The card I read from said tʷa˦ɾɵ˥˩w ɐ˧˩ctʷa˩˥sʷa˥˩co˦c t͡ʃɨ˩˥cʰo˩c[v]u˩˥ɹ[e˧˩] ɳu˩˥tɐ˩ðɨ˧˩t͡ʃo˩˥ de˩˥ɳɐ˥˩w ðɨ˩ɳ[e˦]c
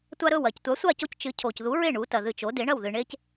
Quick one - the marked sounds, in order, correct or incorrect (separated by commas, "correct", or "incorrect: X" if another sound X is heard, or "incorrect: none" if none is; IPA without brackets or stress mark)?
incorrect: ð, incorrect: e˥˩, correct